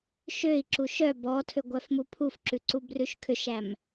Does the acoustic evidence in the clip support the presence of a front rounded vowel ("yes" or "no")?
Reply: yes